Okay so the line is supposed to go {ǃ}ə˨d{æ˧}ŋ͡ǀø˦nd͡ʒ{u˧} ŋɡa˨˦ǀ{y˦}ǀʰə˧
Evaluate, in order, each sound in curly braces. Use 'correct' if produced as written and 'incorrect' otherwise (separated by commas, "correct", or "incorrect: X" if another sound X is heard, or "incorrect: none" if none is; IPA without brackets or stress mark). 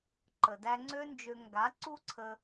correct, correct, incorrect: ø˧, incorrect: u˦